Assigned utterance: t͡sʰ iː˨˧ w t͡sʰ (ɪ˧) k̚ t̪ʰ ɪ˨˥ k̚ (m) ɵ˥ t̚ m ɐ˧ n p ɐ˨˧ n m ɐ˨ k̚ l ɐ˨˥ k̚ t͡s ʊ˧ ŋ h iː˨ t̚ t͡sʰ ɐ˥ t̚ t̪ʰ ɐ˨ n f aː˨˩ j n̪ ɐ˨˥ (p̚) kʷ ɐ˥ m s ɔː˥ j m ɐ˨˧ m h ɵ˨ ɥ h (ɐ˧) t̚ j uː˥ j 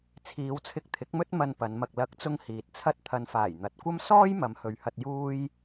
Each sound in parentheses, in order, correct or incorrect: correct, correct, incorrect, correct

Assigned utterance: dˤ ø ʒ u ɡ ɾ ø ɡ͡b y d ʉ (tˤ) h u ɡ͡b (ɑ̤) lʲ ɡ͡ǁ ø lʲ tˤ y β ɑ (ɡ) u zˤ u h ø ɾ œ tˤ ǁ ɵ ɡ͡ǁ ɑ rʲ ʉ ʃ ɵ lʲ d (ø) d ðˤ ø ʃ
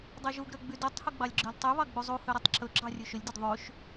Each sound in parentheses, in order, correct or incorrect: correct, incorrect, incorrect, incorrect

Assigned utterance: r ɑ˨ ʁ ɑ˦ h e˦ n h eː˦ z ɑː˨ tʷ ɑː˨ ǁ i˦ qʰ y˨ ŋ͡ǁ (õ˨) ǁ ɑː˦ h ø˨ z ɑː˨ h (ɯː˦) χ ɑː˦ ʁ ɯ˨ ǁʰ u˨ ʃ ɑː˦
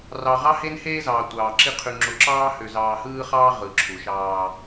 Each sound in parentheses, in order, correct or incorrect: incorrect, correct

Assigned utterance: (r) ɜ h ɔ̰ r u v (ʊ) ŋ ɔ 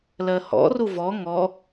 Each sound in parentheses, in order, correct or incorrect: incorrect, incorrect

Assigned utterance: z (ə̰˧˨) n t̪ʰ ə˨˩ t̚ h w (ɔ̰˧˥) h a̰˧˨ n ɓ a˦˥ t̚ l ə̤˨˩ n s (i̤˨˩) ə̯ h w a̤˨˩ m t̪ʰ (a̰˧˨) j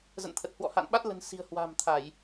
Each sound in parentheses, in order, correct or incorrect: correct, incorrect, correct, incorrect

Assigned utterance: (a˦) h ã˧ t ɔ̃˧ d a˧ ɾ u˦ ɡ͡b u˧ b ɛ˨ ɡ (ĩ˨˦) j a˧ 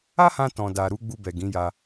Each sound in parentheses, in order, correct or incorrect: correct, correct

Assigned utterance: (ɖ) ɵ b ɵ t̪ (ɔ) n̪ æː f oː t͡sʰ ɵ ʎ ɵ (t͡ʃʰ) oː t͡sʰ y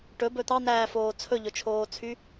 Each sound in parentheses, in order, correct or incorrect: incorrect, incorrect, correct

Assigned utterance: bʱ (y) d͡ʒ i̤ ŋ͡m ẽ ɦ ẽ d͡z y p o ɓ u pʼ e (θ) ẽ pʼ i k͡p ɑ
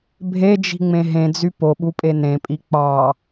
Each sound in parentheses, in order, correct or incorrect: incorrect, incorrect

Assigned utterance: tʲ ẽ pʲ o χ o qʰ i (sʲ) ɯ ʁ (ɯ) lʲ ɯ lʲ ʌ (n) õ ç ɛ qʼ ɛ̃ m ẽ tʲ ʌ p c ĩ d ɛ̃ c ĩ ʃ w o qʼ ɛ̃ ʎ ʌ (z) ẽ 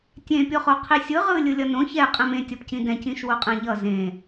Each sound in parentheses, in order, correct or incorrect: correct, correct, correct, correct

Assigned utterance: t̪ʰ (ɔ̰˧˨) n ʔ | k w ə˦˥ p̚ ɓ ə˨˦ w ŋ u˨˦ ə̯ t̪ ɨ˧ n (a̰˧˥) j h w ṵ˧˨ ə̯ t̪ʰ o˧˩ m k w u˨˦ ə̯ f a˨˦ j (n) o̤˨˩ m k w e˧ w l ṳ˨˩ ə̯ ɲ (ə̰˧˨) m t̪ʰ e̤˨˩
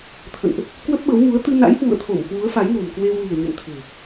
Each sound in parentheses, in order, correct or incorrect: incorrect, correct, correct, correct

